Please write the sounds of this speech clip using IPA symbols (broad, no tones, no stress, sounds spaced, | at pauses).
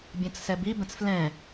bʲ ɛ̃ t͡s s ɛ b i b ɛ̃ t͡s f l ɛ̃